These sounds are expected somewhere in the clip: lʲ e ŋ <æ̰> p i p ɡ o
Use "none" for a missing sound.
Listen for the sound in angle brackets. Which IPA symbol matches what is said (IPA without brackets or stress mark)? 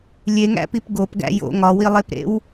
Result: æ̰